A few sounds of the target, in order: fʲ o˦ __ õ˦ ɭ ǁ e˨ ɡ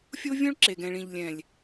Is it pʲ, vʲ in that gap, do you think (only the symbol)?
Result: vʲ